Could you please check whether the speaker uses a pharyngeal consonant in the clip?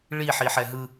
yes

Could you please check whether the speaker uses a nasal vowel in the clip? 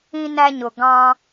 yes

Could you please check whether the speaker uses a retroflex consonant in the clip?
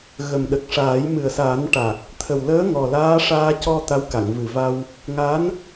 yes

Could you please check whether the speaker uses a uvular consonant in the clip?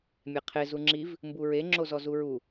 yes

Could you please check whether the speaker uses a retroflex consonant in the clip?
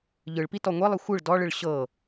yes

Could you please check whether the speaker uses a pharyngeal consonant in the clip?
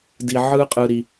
yes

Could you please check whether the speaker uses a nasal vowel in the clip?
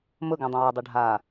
yes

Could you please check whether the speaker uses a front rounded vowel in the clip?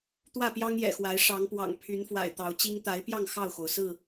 yes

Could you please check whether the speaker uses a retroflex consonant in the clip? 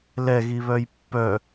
no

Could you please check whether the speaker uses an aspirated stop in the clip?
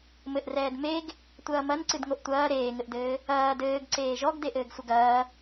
no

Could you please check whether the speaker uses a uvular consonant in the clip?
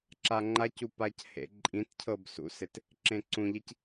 no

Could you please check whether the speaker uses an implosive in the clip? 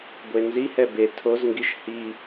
no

